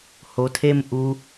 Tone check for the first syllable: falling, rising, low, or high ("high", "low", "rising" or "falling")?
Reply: low